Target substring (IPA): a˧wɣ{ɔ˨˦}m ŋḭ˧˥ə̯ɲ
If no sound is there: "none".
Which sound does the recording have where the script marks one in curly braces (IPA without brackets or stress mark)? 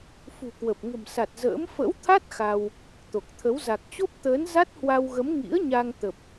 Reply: ə˨˦